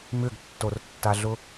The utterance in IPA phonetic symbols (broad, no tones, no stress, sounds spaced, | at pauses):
m ʏ ɡ tː o r tː a ɮ ʊ